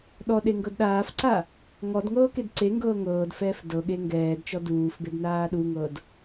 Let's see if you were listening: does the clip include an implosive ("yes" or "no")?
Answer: yes